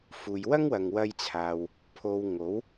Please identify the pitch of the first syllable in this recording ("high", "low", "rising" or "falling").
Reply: low